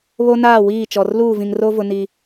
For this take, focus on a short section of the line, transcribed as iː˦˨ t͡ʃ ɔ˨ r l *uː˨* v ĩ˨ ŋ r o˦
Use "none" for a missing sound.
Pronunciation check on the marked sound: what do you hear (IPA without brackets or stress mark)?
uː˦˨